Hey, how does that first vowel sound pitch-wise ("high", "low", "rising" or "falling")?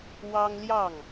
high